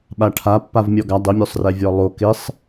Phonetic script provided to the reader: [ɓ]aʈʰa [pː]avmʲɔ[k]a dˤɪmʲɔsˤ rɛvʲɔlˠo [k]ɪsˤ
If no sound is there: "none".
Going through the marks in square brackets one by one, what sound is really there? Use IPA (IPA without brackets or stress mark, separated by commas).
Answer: ɓ, pː, ɡ, k